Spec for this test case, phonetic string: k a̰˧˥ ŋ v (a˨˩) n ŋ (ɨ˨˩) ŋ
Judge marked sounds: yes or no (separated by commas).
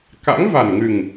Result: yes, yes